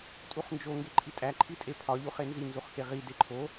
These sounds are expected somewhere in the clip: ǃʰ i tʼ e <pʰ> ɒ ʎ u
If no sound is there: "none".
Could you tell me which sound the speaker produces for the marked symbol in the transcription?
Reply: pʰ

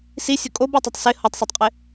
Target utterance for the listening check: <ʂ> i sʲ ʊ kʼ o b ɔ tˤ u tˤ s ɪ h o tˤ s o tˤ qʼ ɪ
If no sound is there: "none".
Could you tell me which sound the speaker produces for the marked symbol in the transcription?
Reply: s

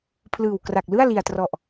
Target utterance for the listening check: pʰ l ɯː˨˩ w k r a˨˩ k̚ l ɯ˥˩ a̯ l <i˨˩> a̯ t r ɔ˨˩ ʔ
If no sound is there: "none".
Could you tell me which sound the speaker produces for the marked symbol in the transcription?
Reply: i˨˩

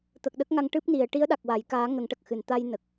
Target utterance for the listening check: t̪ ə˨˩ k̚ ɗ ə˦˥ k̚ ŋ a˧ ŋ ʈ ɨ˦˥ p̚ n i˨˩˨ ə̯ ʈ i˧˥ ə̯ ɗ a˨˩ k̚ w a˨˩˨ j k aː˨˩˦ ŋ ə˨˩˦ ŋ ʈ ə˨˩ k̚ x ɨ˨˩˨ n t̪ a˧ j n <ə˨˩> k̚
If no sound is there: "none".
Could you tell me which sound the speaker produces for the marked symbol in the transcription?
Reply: ə˨˩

